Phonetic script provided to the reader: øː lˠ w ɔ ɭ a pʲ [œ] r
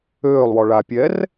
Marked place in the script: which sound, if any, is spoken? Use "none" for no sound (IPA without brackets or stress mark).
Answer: ɛ